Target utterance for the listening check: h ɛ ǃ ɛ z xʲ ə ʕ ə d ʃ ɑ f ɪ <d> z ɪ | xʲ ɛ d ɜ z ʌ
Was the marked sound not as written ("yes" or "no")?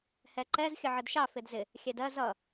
no